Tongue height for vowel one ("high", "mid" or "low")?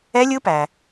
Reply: mid